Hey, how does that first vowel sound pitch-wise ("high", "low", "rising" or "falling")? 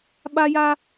high